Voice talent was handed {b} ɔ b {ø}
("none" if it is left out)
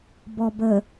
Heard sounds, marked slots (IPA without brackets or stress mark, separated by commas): b, ə